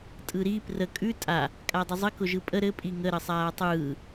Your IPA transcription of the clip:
tʼ ɯ ɾ i p r ə kʼ ʉ tʼ a | kʼ a dˤ ʊ zˤ ɘ k ʊ ʒ ɯ pʼ ə ɾ ɘ pʼ i ŋ ə ɾ ə sˤ aː tˤ ɯː

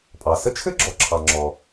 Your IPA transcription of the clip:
pʼ ɑ˩ s ə˥ t͡ʃʰ ɘ˥ ɡ͡ǁ ɔ˩ ǁʰ ɑ˩ ŋ͡ǁ ɔ˩

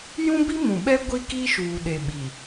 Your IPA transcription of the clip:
j ũ˦ b i˦ m ũ˨ ɓ ɛ˦ ɡʷ i˦ k i˦ ʃ uː˨ ɗ e˨ ɓ i˨

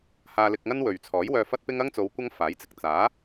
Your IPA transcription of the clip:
h aː˧ l ɪ˧ k̚ ŋ ɐ˥ n w ɵ˨ ɥ t͡sʰ ɔː˨˥ j w œː˧ f ɐ˥ t̚ p ɪ˥ ŋ ɐ˥ ŋ t͡s o˨˧ w kʷ ɐ˥ ŋ f aː˨˥ j t͡s ɪ˨ k̚ t͡s aː˨˥

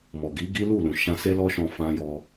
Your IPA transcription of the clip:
m ɔ˨ ɡ i˨˦ ɡ i˦ l u˦˨ l ũ˨ ʃ ã˧ s e˦ l ɔ˦ ʃ ɔ̃˧ f ã˦ j ɔ˦

